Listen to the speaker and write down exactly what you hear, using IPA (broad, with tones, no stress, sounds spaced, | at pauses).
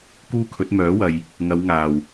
k uː˥ kʰ ɵ˨˥ t̚ m œː˨˥ w ɐ˨ j | ŋ ɐ˨˧ w ŋ aː˨˩ w